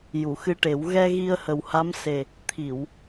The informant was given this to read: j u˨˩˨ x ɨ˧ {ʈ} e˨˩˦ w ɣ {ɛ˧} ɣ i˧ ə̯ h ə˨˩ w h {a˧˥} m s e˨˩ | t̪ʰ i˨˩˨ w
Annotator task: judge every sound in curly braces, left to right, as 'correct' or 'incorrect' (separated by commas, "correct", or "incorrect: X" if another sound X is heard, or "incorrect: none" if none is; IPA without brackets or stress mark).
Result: correct, correct, correct